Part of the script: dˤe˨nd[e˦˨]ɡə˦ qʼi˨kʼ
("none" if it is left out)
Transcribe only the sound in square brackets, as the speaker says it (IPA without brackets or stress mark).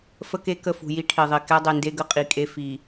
e˦